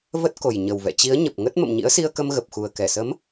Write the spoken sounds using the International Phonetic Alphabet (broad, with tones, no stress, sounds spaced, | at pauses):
v ə˦˥ t̚ k o˨˩ j ɲ ə˨˩ w v ɛ̰˧˨ t͡ɕ i˨˦ ə̯ ɲ ə˨˩ p̚ ŋ ə˦˥ t̚ m ə̰˧˨ m ɲ ḭ˧˥ ə̯ s i˧ ə̯ k ə˧ m ɣ ə˨˩ p̚ x u˨˩ ə̯ k ɛ˧˩ s ə˨˦ m